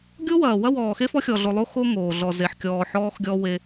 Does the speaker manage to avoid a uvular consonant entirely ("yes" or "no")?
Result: yes